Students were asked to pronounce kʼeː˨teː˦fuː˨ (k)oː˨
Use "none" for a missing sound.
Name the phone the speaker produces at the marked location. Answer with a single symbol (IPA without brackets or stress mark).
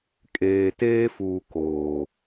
k